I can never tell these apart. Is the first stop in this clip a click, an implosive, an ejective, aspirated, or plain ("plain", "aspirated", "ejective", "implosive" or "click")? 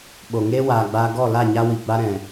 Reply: implosive